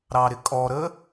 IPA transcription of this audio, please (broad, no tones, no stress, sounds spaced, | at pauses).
ɾ ɑ ɾ ɪ kʼ ɔ ɾ ə